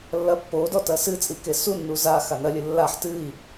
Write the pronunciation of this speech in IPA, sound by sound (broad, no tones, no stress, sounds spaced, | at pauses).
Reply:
lː ɐ pː o d ɔ t ɐ s ɨ t͡sʼ i k e s u nː u z a x a n ɐ lʲ ɨ lː a ħ t ɨ i̯